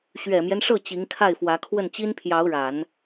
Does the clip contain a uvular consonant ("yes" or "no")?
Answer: no